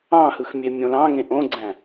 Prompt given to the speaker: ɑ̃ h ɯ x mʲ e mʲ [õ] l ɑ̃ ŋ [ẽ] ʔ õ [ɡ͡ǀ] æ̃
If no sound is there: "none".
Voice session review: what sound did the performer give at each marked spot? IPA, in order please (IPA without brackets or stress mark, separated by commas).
õ, ẽ, ɡ͡ǀ